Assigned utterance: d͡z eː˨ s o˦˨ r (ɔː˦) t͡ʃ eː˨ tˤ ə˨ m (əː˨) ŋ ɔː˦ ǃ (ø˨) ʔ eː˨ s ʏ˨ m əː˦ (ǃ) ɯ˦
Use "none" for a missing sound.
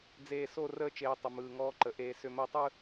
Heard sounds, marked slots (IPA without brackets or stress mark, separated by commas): əː˦, ɯː˨, ə˨, tˤ